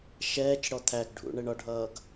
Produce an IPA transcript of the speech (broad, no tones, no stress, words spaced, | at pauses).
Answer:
ʃɛːt͡ʃɽɔ t̪ʰæɡɖʱṵ ɳɛɳɒɖʱʌːɡ